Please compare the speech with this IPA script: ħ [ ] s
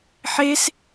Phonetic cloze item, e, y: e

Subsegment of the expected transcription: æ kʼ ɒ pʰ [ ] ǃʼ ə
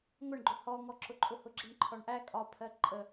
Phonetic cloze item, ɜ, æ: ɜ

